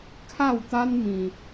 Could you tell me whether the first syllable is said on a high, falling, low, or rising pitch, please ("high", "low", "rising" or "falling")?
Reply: falling